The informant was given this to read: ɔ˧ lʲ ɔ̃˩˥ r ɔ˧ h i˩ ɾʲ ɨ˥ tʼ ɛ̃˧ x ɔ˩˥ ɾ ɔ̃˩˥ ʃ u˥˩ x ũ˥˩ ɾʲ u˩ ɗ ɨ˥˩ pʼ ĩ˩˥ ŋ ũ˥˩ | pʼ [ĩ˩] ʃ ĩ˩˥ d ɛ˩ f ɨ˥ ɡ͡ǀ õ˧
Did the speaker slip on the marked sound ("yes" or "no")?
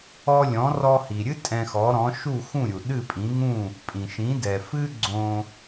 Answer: no